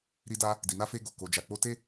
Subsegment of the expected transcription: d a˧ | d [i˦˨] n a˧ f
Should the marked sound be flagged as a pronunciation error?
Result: yes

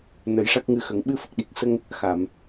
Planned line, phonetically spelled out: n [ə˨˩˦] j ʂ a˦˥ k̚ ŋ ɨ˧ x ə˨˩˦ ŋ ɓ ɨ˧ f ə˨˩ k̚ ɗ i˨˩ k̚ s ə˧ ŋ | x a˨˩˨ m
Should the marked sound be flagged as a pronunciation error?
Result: no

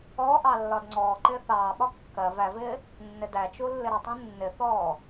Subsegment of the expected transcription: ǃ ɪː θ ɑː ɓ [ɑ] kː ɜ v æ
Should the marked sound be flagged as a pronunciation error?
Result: yes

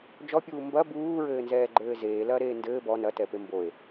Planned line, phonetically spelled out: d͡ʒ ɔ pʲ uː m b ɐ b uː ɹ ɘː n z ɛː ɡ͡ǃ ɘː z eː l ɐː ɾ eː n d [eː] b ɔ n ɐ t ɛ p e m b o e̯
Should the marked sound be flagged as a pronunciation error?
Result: yes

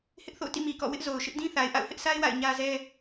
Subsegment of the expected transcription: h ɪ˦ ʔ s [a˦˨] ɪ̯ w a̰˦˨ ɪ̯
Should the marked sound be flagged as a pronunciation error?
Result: yes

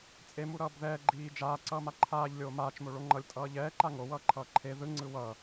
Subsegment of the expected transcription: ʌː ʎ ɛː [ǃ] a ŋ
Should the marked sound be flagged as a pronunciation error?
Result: no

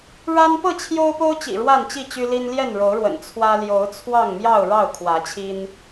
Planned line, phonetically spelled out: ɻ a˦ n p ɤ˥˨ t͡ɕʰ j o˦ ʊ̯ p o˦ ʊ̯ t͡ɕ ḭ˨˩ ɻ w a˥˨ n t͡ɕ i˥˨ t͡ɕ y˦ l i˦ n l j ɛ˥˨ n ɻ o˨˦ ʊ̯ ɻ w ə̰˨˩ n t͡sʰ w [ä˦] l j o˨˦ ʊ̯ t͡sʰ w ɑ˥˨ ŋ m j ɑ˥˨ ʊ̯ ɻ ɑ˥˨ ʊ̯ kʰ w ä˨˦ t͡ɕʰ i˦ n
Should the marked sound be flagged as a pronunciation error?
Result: no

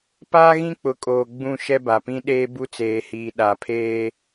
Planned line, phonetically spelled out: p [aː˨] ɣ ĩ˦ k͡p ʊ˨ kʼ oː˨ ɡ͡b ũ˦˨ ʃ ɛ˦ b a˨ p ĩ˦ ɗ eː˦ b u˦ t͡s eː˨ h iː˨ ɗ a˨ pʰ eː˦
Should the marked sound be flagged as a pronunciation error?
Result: yes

